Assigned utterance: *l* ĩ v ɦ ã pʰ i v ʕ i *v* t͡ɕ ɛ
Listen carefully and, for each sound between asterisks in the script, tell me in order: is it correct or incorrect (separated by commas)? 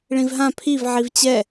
incorrect, correct